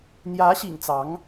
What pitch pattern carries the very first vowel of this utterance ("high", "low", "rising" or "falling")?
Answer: rising